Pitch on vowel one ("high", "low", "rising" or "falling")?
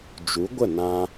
rising